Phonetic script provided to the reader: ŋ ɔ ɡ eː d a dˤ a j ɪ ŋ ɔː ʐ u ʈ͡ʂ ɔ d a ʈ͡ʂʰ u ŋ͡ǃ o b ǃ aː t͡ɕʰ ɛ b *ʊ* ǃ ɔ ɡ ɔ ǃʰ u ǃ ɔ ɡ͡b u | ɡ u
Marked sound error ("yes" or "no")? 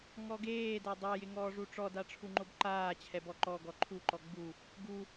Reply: yes